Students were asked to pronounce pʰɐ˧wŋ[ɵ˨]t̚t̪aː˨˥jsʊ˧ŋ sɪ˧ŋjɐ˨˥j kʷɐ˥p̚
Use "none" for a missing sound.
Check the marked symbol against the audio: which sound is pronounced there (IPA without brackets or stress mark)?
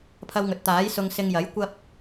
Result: ɵ˨